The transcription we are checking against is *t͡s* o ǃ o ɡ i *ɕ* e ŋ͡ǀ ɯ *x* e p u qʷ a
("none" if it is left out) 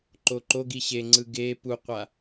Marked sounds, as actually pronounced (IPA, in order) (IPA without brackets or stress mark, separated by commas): ǃ, ɕ, ɡ